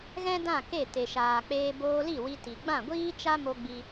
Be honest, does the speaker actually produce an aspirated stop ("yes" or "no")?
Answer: no